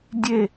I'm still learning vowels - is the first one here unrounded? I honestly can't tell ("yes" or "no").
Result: yes